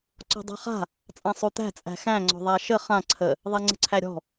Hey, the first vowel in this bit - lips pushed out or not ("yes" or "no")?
yes